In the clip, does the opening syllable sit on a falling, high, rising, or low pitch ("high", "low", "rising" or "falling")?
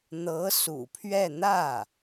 rising